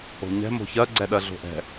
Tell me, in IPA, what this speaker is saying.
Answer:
o̤ ɲ ɛ̤ m o̤ ç ɜ ɡ͡ǀ ɛ ɗ ɜ ɮ o̤ ʔ ɛ̤

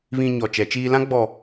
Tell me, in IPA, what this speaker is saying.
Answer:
β ĩ˨ ɲ ɔ˨ t͡ʃ ɛ˨˦ t͡ʃ iː˦ l ã˦ ɡ͡b ɔ˨

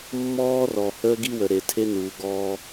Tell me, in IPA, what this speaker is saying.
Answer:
mː ɔː˦ r ɔ˨ h əː˦ ɡ i˦ w ə˨ ɾ e˨ tʰ e˦ n uː˨ ɡ ɔː˦

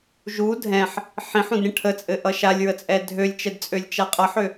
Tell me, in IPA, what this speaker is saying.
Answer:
ʒ u dʱ ɛ̃ ħ | ħ ĩ ħ ũ d ɾʲ ə̃ ʈʰ ə t͡sʼ ɘ ʔ ʌ ʃ a lʲ ɹ ə t͡sʼ ɛ dʱ ø lʲ t͡ʃ ɛ d t͡sʼ ø lʲ t͡ʃ a qʼ ʌ ħ ø

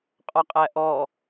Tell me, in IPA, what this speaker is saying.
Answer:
qʼ ɔ qʼ æ ʔ ɔ

